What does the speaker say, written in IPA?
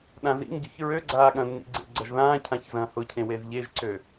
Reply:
ɗ ã z ḭ ŋ ɟ ø ç ɹ ø ɡ͡ǀ aː ɠ ɐ̃ nː ḭ ɡ͡ǀ ḛ ɡ͡ǀ ɐ ʒ ð ãː cʰ ã ç z ɐ̃ː h ʊ cʰ ẽ w e z ʎ e ʒ ǀ ø

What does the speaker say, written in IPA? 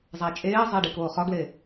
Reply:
zˤ æ t͡ʃʼ eː zˤ e ɖ i k oː χ ɒ ɡ l e

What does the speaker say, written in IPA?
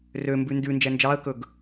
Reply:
r ø m b ʉ n d ʉ n d͡ʒ ɛ n d͡ʒ ɑ ə̯ k ɵ ɡ

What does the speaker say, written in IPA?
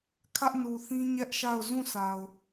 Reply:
kʰ ä˦ ʔ n u˨ θ ĩ˦ ɲ ɛ˦ ʔ ʃ a˦˨ ʊ̯ z ũ˦˨ sʰ a˨ ʊ̯

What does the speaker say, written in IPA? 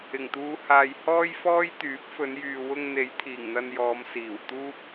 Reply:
ɪ˨˩ ŋ t̪ uː˨˧ h aː˨ j h ɔː˥ j f ɔː˥ j t̪ yː˨˥ p̚ f ɵ˨˧ n j yː˨ w ʊ˧ ŋ n̪ e˨˥ j t̪ʰ iː˨˩ ŋ n̪ ɐ˧ n j ɔː˨˧ m s iː˨˩ w t̪ uː˥ p̚

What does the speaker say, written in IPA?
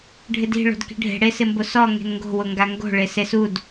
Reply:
ɖʱ ɪ d i̤ ɭ o̤ d k i̤ ɖʱ e̤ ɽ e s ɪ m b o s ɔ ŋ e̤ n ŋ ɡ o̤ w ʊ ŋ ɡ a ŋ ɡ o̤ ɭ e s e s u d

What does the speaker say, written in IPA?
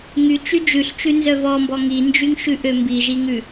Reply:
ŋ y t͡ʃ y d͡ʒ ʉ ɬ t͡ʃ ʉ n z œ v ɔ m b ɔ ŋ i n d͡ʒ y ŋ ʃ ʉ ʔ ø m b i ʒ i ŋ ʉ

